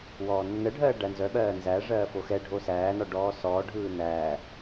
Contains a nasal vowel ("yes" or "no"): no